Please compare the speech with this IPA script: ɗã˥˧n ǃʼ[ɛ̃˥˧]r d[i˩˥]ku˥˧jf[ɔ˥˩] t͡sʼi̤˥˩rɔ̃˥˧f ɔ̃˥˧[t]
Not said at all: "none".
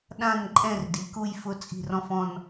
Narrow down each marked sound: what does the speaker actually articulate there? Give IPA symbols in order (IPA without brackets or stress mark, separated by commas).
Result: ɛ̃˥˧, i˩˥, ʊ˥˩, n